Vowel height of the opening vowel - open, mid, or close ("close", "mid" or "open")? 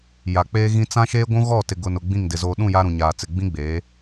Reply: open